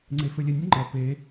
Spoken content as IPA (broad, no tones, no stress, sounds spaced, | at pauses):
ŋ͡ǀ e f ɘ lʲ ɘ nʲ ə ŋ͡ǃ ʌ p e